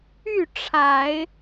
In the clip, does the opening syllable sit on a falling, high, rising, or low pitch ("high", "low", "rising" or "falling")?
falling